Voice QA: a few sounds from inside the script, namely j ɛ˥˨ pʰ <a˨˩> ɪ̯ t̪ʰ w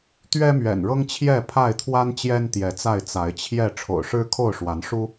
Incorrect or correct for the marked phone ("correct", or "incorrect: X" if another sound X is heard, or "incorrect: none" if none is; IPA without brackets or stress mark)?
incorrect: a˥˨